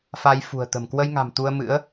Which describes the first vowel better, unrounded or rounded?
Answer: unrounded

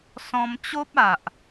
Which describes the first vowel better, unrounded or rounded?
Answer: rounded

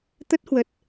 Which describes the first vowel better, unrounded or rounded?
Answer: unrounded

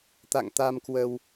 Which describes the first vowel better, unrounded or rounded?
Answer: unrounded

